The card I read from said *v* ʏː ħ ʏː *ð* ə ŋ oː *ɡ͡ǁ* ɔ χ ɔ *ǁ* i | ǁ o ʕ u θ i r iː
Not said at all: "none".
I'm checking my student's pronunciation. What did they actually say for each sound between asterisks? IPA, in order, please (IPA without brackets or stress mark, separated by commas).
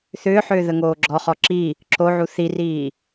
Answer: θ, ð, ɡ͡ǁ, ǁ